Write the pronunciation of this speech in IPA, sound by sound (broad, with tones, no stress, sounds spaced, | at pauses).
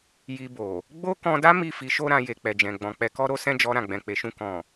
j i˧ b o˨ | ɡ͡b o˦ k ɔ̃˧ d a˦ m i˦˨ f i˨˦ ʃ o˧ ɾ ã˨ j e˨ k͡p ɛ˨ d͡ʒ ɛ̃˨ ɡ͡b ɔ̃˨ k͡p ɛ˨˦ k ɔ˦ ɾ o˦ s ɛ̃˦ d͡ʒ ɔ˧ ɾ ã˨ ɡ͡b ɛ̃˨ k͡p e˨ ʃ ũ˧ k ɔ̃˨